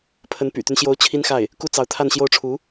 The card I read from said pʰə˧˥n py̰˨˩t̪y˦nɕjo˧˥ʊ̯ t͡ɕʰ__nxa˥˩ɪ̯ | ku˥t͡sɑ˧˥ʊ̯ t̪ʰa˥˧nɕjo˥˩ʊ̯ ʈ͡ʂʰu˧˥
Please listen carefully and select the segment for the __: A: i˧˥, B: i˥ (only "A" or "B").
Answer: B